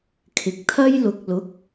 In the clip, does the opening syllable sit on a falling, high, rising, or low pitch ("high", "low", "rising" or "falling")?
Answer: rising